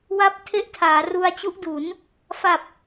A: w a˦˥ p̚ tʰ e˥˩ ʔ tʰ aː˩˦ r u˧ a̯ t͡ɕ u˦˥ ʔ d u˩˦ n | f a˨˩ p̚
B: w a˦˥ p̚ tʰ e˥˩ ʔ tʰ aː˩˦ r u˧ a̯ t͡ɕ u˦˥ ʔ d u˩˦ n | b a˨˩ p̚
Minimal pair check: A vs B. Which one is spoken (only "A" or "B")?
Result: A